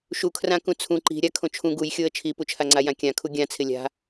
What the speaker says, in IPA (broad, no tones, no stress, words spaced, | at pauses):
ʃukʰrã kũt͡sʰũ ǃi̤ ɾʲakʰõt͡ʃʰũ ɡujxʲoə̯ t͡ʃʰiput͡ʃʰaŋ͡ǀa jãkʲãkʰu ɡʲã t͡sʰɪlʲa̤